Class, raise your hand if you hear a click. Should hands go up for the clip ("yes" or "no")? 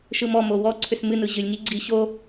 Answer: yes